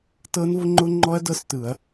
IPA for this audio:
tɤ˦˥nvʊ˦˥ŋ͡ǃʊ˦˥ŋ͡ǃɔ˦˥ɐ̯ dɤ˦˥stɯ˧˩˧ɐ̯

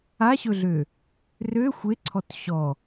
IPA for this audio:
aɕɵɮø | rø xʷeǀʰɔt ɕɔ

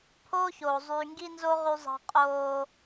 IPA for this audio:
pʰoː˦çoː˨ zˤyː˨ŋɡi˦nzo˦ ʁy˦zˤɑ̤˦ qʼoː˦

